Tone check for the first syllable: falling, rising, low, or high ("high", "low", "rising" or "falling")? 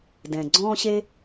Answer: low